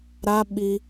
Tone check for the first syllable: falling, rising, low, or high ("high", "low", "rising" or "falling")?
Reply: high